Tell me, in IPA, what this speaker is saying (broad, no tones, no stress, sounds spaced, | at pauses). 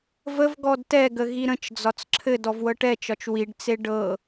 v ə v ɡ ɔ d t ɛ ɡ ə ɣ i ɾ ə̃ t͡ʃ d͡z ɒ t͡s ǁʰ ɘ d ɔ v w ɤ ʈ ɛ t͡ʃ ɒ t͡ʃ w i ɖ t͡s e ɖ ɤ